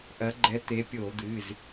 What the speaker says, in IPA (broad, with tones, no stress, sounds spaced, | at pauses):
ʔ ɐ˨˦ ɡ͡ǃ ɛ˨˦ t̪ e˨˦ pʲ o˧˩˧ d̪ ɨ˩˧˩ z